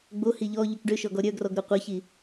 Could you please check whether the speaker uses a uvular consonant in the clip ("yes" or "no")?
yes